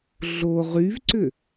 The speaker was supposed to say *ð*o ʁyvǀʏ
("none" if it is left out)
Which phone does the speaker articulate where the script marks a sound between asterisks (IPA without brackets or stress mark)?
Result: ɮ